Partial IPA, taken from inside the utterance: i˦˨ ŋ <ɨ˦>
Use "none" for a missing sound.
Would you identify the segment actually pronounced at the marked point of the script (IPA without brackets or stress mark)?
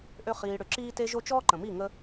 ə˦